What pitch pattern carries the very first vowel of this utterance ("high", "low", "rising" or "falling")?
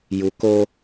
low